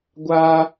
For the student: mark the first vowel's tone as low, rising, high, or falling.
high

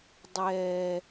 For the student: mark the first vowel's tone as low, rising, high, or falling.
low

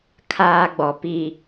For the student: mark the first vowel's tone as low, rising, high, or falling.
high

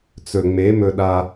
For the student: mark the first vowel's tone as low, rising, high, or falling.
low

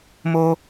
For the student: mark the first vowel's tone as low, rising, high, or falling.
high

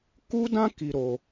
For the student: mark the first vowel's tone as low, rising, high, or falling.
high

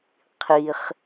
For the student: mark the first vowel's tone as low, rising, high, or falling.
high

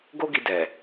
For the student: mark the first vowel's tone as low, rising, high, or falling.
high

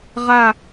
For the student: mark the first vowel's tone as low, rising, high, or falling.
falling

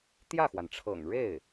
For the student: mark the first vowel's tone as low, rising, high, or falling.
falling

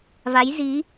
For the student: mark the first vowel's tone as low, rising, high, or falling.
rising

